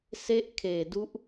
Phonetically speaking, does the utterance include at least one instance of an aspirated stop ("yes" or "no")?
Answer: yes